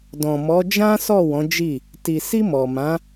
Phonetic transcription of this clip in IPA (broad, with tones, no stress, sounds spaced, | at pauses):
d ɔ̃˨ m ɔ˨˦ d͡ʒ ã˦ s ɔ˦˨ w ɔ̃˨˦ d͡ʒ i˦˨ | t i˨ s i˧ m ɔ˨ m ã˨˦